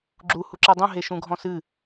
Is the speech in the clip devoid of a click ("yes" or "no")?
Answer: no